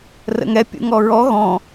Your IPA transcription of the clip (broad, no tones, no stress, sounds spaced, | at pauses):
r ə̰ ŋ ɛ pʲ ṵ ŋ ɔ ɹ ɔ ɣ ɔ̃